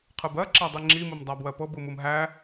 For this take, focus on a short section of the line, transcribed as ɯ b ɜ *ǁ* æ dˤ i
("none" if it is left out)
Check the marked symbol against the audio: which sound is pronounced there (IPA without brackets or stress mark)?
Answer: ǁ